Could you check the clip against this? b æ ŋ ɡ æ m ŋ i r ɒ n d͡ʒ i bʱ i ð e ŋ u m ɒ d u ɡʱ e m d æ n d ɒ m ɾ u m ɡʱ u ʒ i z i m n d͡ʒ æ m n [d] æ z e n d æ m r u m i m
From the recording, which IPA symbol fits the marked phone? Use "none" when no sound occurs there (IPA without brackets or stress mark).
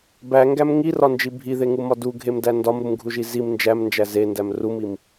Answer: d͡ʒ